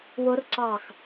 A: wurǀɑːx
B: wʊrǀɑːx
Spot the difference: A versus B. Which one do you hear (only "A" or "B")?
B